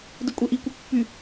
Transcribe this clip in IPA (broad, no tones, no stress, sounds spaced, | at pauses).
d ɯ kʷʼ e ʔ i kʷ i pː y